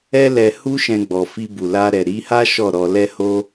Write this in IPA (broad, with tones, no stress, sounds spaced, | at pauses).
ɛ˦ l ɛ˧ h u˦ ʃ ɛ̃˧ ɡ͡b ɔ˨ f i˧ b u˨ l a˧ ɾ ɛ˨ ɾ i˨˦ h a˦ ʃ ɔ˦˨ ɾ ɔ˧ l ɛ˦ h o˦